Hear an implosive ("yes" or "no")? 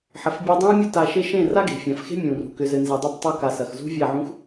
no